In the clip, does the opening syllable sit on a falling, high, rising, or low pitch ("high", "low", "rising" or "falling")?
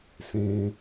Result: low